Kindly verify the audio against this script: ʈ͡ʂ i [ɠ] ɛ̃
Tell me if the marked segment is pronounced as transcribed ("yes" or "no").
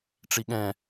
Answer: yes